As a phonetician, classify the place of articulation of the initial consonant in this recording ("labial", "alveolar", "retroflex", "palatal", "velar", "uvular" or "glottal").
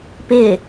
labial